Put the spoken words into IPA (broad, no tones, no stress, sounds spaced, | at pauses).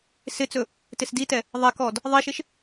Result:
s ɪ t͡s ɵ | t ɪ s d i t ɛ | ðˤ ɛ k ɔ d | ðˤ i ʃ ɪ ʃ